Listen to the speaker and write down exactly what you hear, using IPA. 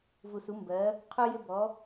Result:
v u˩ s u˩˧ m b ɜ˩˧ | qʰ u˧ j ɪ˧ b ɔ˩˧

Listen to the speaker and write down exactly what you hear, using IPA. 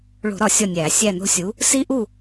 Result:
ɭ o̤˧˩˧ ɾ ɒ˧˩˧ sʲ ɒ˦˨ nʲ æː˧˩˧ sʲ æ˦˨ n o̤˦ sʲ u˨˥ | s i˦ ʔ u˦˨

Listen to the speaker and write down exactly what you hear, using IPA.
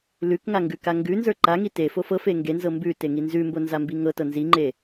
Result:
l ʉ k ŋ a ŋ ɡ ʉ k a ŋ ɡ ʉ n z ə˞ ǃ a ŋ i t e f o f ɤ f e ŋ ɡ e n z ɤ m b ʉ t e ŋ i n z ʉ m b o n z a m b i ŋ ɤ t ɤ n z i ŋ͡ǃ e

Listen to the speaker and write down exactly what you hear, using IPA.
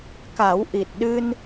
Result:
k a˨˩˦ w ʔ i˨˩ t̚ ɗ ɨ˧ n

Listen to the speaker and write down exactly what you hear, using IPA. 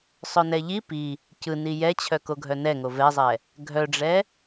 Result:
sˤ œ n ɛ ʎ i p i | c ɯ n i j ɛ t͡ɕʰ œ k o ɡʱ œ n ɛ ŋ o v ɛ zˤ ɛ | ɡʱ œ ɖ͡ʐ ɛ

